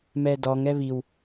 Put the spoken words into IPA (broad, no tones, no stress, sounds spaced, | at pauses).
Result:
m ɛ d ɔ ŋ ɛ β i w